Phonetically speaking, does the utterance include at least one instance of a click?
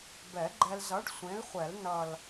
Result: yes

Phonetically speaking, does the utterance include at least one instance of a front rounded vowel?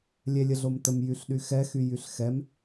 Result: yes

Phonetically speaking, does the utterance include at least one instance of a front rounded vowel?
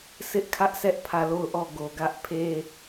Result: no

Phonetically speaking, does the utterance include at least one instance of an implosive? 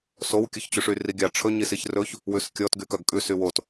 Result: no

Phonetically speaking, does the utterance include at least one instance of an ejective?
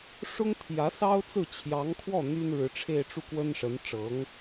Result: no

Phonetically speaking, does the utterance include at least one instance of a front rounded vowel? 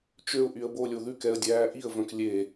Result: yes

